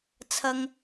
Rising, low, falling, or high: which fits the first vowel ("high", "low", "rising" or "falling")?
low